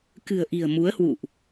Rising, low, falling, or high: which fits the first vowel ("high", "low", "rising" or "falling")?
low